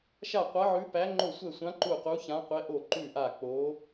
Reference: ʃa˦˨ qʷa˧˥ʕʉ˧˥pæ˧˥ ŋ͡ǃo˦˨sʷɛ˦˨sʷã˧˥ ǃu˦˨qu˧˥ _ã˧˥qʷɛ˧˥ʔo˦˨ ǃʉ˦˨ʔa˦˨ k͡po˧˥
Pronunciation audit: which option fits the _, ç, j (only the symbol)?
ç